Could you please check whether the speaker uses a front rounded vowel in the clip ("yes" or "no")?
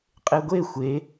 no